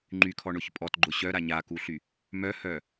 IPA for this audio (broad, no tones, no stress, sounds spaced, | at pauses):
ŋ͡ǃ y kʰ ɔ ɳ ʊ ç pʼ ɔ t ɡ͡ǃ ʊ ɕ œ ɾ a ɲ a k u ɬ y | m œ h œ